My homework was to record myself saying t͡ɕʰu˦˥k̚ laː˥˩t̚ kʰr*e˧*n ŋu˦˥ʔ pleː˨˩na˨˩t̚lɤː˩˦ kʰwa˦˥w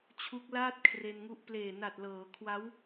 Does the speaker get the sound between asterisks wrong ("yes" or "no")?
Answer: no